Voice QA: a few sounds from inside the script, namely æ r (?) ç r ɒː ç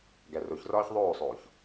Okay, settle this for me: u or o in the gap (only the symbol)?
o